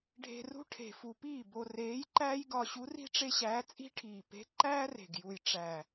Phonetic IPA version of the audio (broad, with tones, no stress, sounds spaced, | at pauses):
ɖʱ e̤˧ r ṳ˥ ʈʰ e̤˨˩ f u˨˩ p iː˥˩ b o˧ r eː˧˥ j ǃ æː˥ j ɡ ɒ˧ ɕ u˧˥ r i̤˥ ʈ͡ʂ e˥ ɕ æː˧˥ t͡sʼ i̤˥ ʈʰ iː˨˩ p e̤˧˥ ǃ æː˥ r e̤˨˩ ɡ j u˨˩ j ʈ͡ʂ æ˨˩